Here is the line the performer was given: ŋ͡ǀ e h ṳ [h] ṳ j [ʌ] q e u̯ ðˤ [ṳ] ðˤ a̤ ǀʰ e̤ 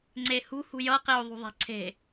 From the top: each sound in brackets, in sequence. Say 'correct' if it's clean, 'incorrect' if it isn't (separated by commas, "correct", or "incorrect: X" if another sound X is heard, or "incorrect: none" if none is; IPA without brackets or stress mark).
correct, correct, correct